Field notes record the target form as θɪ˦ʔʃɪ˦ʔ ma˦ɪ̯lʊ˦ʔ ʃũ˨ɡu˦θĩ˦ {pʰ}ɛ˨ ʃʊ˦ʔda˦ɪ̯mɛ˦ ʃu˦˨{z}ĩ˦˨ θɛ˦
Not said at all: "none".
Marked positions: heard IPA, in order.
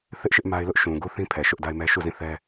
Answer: pʰ, z

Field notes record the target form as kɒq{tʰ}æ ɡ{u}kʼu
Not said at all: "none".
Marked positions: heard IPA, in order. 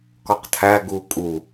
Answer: tʰ, u

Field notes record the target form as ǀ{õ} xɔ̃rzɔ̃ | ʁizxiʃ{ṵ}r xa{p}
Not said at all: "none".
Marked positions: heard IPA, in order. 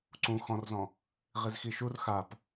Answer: ũ, u, p

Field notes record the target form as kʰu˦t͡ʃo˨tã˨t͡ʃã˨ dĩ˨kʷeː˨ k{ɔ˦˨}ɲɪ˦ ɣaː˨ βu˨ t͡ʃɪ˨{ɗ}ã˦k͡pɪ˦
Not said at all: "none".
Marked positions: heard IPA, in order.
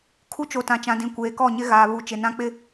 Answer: ɔ˦˨, n

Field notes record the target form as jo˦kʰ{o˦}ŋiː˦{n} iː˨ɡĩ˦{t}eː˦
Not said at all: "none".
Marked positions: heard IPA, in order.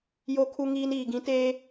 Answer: u˦, n, t

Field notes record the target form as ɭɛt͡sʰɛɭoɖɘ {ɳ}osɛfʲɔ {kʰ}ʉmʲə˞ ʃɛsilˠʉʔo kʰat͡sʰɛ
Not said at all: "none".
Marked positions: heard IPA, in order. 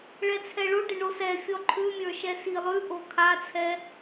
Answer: ɳ, ǃʰ

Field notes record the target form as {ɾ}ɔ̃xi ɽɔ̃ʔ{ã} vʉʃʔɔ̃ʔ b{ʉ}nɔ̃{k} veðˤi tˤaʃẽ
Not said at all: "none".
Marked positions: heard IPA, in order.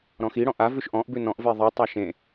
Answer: ɾ, a, ʉ, ʔ

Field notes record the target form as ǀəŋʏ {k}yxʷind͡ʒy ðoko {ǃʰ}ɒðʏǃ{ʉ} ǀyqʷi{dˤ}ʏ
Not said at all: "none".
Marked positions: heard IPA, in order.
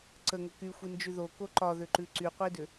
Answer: k, ǃ, ʉ, d

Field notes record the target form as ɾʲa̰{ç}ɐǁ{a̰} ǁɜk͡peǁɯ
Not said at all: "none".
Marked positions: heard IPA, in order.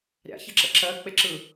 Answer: ç, ə̰

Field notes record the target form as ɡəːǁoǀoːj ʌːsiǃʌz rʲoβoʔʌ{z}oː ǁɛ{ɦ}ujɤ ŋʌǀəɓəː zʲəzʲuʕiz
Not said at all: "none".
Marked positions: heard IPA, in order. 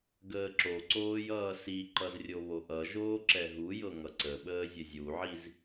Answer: ʒ, ɦ

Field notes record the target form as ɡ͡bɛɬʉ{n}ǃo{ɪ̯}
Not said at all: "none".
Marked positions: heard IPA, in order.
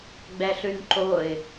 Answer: n, ɪ̯

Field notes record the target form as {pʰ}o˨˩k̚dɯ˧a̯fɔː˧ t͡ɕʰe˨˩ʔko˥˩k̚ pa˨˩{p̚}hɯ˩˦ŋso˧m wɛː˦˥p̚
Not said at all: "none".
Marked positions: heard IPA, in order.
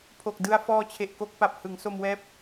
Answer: pʰ, p̚

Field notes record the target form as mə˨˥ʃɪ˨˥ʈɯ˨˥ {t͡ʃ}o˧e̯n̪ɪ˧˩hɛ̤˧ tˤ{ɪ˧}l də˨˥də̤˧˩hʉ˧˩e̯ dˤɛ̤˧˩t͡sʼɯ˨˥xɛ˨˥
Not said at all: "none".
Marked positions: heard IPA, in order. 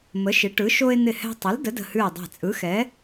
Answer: ʃ, ɪ˨˥

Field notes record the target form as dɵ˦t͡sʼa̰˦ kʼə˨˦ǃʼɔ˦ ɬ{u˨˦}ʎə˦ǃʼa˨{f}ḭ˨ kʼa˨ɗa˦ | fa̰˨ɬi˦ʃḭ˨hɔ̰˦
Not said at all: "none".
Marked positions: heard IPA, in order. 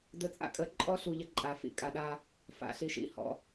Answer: u˨, f

